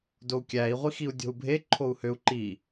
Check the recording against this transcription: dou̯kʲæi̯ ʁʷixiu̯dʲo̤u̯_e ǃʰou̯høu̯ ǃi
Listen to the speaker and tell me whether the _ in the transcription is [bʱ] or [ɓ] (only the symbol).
bʱ